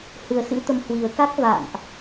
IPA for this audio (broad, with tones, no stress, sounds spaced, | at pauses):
h ɨ˨˩ ə̯ s ɨ̰˧˥ t̪ ə˨˦ m h w i˨˩ ə̯ k a˦˥ k̚ v a̰ː˧˨ n ʔ